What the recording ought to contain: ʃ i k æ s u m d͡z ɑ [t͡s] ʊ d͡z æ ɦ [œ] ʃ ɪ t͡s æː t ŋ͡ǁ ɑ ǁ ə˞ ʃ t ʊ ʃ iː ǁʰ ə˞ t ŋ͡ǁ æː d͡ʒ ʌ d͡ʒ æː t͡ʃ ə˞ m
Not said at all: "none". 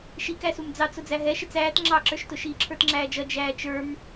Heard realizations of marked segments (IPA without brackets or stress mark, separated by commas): t͡s, ɛ